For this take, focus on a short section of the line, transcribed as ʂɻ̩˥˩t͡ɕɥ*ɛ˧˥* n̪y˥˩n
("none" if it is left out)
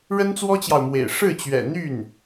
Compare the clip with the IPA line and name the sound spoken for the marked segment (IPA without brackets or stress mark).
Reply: ɛ̰˨˩